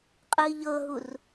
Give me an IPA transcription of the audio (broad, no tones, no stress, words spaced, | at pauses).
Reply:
qʼɯi̯ʎɤɦur